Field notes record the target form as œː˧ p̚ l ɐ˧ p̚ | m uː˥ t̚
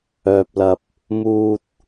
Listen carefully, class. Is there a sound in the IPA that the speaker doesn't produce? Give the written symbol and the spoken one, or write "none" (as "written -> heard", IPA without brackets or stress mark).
none